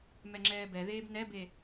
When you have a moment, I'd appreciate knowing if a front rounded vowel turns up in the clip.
no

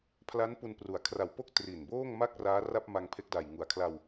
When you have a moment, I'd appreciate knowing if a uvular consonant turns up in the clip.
no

